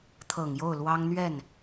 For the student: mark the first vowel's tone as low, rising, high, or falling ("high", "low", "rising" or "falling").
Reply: low